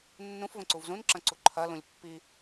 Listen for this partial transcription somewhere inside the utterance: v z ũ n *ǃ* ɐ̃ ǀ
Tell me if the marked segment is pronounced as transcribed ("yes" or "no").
no